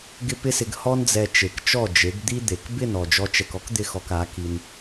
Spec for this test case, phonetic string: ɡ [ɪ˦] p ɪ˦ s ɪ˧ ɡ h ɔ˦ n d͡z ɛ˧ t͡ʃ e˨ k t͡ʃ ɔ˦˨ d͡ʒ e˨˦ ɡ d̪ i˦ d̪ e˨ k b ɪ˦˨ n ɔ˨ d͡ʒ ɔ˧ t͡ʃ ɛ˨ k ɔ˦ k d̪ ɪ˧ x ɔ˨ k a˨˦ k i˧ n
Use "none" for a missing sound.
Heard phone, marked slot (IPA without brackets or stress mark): ɪ˦